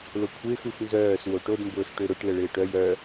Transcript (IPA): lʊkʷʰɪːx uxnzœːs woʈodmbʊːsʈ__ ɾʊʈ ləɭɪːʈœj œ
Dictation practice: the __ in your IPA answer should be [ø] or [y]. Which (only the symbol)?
ø